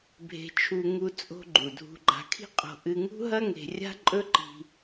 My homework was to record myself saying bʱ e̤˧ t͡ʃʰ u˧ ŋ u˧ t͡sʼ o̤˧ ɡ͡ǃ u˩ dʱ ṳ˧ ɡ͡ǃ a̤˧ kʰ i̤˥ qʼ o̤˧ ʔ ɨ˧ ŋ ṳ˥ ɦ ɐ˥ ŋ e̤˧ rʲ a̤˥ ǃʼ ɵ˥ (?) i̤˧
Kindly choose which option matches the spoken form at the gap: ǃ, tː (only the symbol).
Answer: ǃ